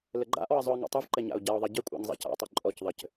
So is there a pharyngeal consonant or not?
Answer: no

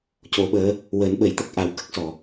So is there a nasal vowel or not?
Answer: no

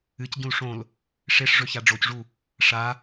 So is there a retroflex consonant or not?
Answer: yes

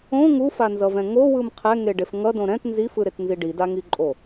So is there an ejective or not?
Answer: yes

